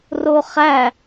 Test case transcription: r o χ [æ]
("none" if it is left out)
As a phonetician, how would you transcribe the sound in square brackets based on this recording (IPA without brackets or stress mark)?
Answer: æ